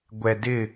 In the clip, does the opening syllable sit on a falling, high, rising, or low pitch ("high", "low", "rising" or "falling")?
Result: low